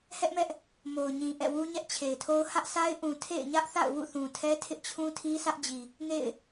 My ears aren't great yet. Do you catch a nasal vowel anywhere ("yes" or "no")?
yes